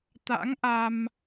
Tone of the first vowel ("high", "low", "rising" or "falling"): rising